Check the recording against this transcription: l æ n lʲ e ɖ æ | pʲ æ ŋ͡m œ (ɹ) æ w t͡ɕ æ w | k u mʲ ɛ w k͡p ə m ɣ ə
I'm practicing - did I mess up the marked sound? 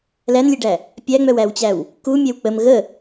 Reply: yes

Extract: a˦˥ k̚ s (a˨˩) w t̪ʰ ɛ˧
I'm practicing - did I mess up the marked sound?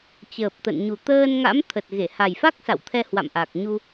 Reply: yes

